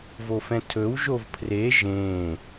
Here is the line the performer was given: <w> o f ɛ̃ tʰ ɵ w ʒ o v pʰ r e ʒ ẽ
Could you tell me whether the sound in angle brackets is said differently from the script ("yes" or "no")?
yes